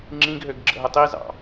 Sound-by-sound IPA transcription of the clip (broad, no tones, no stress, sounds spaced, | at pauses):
ŋ͡ǁ ĩ ɡ ɦ ø ɡ ɡ͡ǁ ə̰ ɦ ə tˤ i z ɑ̰